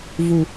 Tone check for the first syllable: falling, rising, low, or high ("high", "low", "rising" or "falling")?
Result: low